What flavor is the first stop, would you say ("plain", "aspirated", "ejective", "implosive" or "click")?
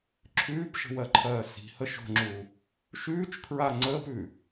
click